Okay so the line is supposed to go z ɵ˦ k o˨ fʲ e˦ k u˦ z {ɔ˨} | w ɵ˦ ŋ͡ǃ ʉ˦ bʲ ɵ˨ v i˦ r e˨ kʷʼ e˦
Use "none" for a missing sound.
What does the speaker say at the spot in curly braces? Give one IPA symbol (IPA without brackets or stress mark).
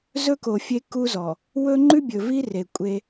ɔ˨